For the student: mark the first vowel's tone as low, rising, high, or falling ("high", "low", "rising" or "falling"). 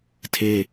high